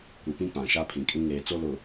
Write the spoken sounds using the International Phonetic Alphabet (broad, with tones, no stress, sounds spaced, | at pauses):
kʷ i˨ p ĩ˦ k͡p ã˨ ʃ a˦ pʰ ĩ˨ kʼ ĩ˦ ŋ eː˨ t͡s o˦ l ʊ˨